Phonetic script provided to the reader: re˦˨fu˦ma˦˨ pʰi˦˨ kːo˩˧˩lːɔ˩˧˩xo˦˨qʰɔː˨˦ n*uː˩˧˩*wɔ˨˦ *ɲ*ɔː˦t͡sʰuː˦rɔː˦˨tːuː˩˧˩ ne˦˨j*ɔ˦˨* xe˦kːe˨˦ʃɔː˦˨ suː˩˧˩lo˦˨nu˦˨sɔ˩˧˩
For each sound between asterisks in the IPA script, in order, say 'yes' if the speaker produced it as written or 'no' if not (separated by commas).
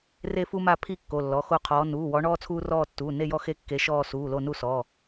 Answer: yes, no, yes